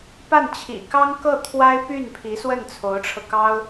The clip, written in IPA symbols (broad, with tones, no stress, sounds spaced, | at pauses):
p a˥˩ n t͡ɕʰ ḭ˨˩ k ɑ˥ ŋ k ɤ˥˩ t̪ʰ w a˥ ɪ̯ p y˥˩ n pʰ i˧˥ s w ə˥˩ n t͡sʰ o˧˥ ʊ̯ ʈ͡ʂʰ ɤ˧ k ɑ˥ ʊ̯